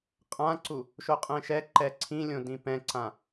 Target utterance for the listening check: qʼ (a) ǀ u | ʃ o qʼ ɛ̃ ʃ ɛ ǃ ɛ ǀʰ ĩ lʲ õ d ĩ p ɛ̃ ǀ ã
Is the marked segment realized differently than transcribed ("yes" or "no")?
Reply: yes